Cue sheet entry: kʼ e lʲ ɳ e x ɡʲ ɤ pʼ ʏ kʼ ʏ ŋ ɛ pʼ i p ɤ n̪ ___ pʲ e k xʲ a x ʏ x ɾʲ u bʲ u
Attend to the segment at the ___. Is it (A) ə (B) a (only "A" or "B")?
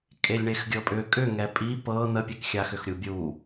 A